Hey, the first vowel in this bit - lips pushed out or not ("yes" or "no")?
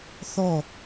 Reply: yes